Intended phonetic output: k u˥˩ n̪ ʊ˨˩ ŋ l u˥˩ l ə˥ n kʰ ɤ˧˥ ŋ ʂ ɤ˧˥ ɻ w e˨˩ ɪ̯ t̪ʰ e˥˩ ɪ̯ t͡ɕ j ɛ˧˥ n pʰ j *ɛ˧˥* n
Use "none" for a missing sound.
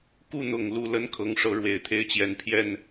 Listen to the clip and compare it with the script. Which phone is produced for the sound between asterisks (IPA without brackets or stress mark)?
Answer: ɛ˥˩